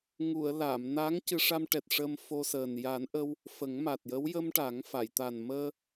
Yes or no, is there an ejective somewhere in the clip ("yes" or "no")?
no